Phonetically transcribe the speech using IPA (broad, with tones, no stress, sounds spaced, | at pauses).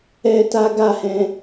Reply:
ɛ˦ t a˦ ɡ a˦˨ h ɛ̃˧